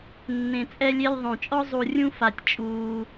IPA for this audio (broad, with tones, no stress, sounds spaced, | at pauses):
nː ẽ˨ t͡sʼ ɛ˦ lʲ e˦ lʲ ðˤ õ˨ t͡ʃʼ ɔ˥ zˤ u˨ rʲ ũ˦ f a˨ tʲ t͡ʃʼ uː˨